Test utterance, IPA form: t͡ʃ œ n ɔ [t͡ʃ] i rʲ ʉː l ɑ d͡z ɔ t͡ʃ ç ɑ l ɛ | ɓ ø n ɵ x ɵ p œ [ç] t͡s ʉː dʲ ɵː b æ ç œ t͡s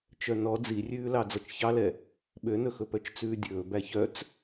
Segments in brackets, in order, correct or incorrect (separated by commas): incorrect, incorrect